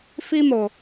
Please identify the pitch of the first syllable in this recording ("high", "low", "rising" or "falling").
high